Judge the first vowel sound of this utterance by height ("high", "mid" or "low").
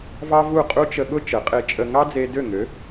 low